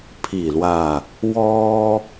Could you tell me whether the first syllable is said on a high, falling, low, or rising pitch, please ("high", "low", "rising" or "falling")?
falling